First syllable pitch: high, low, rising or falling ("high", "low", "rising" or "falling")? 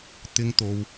high